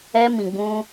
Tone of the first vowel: high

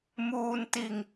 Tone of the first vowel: low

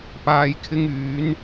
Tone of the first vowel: low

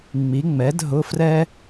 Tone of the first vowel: rising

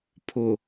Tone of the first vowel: low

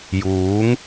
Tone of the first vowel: rising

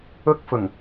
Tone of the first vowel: high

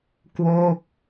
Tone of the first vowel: falling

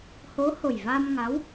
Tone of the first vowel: rising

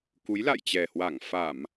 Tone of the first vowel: rising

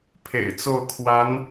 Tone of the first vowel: low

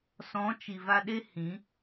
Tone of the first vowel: rising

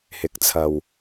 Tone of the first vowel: rising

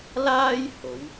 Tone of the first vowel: high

